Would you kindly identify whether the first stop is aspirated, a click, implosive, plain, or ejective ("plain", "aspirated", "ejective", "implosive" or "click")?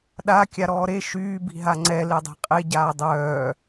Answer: implosive